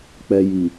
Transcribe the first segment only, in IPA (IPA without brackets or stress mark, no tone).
k͡p